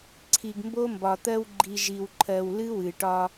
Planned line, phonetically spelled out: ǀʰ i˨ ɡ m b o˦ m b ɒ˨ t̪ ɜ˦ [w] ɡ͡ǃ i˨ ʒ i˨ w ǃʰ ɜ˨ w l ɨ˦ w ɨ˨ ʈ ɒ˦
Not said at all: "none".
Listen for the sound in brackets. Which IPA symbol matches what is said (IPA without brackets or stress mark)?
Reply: w